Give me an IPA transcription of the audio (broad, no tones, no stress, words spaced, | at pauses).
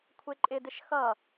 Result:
kʷʰeǃʼɪdɪʃ xʌ